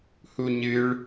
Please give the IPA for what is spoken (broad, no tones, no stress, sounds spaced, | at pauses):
h u ɲ ɨ ɭ